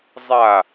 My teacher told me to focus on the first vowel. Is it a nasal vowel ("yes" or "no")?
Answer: no